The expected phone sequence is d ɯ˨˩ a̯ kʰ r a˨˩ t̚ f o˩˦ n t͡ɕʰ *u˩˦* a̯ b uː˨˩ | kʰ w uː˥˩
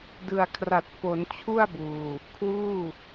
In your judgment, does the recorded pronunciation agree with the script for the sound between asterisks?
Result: no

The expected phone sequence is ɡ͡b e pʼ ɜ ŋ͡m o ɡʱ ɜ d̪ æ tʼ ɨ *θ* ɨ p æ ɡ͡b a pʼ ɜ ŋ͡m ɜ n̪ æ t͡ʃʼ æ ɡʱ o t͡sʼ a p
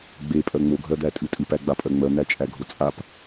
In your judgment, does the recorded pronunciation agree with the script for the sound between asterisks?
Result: no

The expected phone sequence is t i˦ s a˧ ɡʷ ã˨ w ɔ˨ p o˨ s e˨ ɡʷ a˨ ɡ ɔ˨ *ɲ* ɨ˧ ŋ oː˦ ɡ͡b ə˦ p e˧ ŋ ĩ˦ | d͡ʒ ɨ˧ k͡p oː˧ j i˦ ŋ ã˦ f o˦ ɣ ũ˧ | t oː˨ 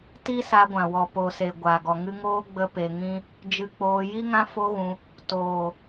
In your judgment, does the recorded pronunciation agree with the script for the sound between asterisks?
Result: no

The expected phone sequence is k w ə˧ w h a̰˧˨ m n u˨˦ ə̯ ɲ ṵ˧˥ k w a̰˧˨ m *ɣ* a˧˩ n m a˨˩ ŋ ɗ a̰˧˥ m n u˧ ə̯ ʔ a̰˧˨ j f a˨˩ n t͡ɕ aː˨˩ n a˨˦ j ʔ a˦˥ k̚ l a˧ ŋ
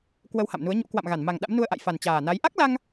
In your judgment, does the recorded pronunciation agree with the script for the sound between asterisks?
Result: yes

